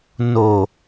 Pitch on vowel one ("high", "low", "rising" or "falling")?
low